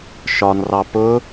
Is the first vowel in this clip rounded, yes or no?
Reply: yes